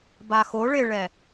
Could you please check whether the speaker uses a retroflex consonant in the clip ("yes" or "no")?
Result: yes